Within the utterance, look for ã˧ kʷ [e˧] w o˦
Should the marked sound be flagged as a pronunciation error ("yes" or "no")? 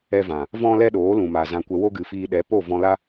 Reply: yes